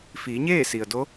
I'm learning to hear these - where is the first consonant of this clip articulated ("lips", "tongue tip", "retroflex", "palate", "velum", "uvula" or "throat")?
lips